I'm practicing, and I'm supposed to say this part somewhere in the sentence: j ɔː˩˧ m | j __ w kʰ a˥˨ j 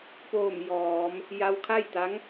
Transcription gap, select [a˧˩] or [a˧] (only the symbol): a˧